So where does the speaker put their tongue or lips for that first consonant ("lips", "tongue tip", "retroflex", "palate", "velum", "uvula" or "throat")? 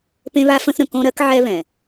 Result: lips